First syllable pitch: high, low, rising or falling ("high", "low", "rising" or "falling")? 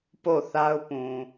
falling